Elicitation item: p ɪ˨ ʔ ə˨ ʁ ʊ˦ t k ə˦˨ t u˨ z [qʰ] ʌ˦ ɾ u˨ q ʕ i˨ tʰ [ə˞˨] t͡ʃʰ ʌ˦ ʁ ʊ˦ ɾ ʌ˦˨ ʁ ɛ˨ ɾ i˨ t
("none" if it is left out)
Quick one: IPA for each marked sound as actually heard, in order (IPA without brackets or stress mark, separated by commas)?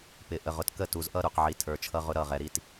ʔ, ə˞˨